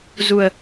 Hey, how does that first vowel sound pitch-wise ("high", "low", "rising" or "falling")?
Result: low